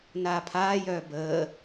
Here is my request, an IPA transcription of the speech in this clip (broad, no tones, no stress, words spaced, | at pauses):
naːpʰaːjœː bəː